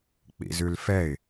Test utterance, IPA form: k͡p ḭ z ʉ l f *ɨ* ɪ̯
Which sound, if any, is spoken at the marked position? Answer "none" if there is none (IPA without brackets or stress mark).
ɛ